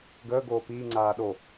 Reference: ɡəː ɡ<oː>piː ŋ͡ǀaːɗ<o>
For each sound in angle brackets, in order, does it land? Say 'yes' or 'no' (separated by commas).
yes, yes